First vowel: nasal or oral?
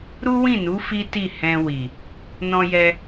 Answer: oral